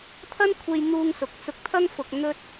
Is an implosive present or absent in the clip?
absent